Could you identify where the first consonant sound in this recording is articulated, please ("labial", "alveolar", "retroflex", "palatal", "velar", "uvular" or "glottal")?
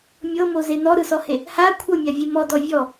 labial